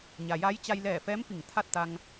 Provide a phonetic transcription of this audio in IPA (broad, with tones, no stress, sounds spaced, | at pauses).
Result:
ɲ a˩ j a˧˥ j t͡ɕ a˧ j l ɛː˧˩ f ɛː˧˥ m f i˧˩ ŋ t̪ʰ a˥˨ t̚ t̪ a˧ ŋ